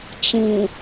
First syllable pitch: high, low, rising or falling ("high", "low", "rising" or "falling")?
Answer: low